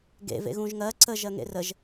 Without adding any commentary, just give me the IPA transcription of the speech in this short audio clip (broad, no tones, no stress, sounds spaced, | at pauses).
ɡ ḛ v ḛ ɣ ũ ʒ ŋ ɜ ǀ ə ʒ ɜ ŋ ḛ r ə ʒ